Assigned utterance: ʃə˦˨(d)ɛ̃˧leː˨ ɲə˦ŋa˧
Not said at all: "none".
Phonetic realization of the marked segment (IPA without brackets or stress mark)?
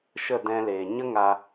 d